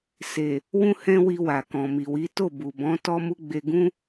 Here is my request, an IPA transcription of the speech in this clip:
s e˨ | w ũ˦ h ɛ̃˦ w i˧ w a˨ k ɔ̃˨ m i˨ w i˨˦ t o˦˨ b u˨ b ɔ̃˨˦ t ɔ˦ m u˦ ɡ͡b e˧ ɡ ũ˦

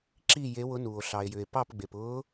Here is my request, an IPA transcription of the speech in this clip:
ǁ i˦˨ j e˧˥ w ʊ˧˥ n uː˩ o̯ ɬ ɑ˩ e̯ j ʏ˩ e̯ p ɑ˦˨ p ɡ͡b e˩ p ʊː˧˥

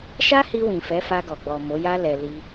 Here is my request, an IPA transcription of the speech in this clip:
ʃ a˦ h i˧ w ĩ˨ f ɛ˨˦ f a˧ ɡ ɔ˨ ɡ͡b ɔ˨ m o˨˦ j a˦ l ɛ˧ l i˧

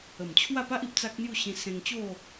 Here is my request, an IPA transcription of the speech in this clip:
ə˨˩ m t͡ɕʰ w a˥˧ p a˦ ʔ i˨ p̚ t͡s a˦ k̚ n̪ j u˥˧ ɕ ĩ˧ s ẽ˧ ŋ t͡ɕ o˥˧

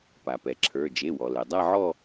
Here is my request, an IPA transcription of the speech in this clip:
p a˩ p ɛ˩ ǁʰ ə˞˩˧˩ d͡ʒ e˩˧˩ w ɔ˩ l ɛ˩ dˤ a˦˨ ʕ ɔ˦˨

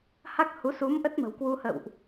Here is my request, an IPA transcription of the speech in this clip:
h a˦˥ k̚ h u˨˦ s u˨˦ m ʔ ə˦˥ t̚ m ə̤˨˩ w k w u˧ h ə̰˧˨ w ʔ

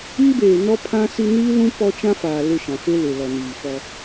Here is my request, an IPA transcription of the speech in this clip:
iː˦ b eː˨ n ɔ˦ pʰ ã˦ s i˦ n iː˦ l ũ˦ p ɔ˦ t͡ʃ ã˦ f aː˨ l ɪ˦˨ ʃ ã˨ f e˦ l ɪ˨ l ɔ˨ n iː˨ f ɔ˦

